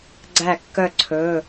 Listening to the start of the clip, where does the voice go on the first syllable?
falling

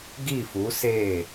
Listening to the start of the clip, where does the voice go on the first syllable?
falling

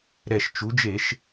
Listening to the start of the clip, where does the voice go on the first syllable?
low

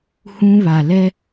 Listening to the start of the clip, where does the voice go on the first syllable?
high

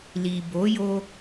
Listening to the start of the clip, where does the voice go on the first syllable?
low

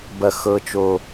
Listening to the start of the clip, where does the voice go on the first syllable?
high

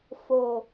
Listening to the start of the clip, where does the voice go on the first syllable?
low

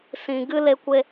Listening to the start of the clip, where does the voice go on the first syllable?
low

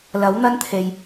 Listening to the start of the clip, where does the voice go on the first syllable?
rising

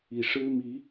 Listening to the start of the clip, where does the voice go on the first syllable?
low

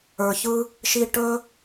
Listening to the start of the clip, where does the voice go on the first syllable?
low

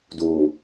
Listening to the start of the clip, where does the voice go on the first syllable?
low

